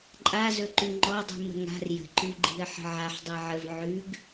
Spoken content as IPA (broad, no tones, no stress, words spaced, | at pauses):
ǃʼazɵ ǃʉŋ͡ǃɔdˤi̤ mə̤ŋa̤r jə̤ǃʉɡ͡ǃi̤ə̯ ħə̤ʕaħ dˤiʕəv ʕʉɡ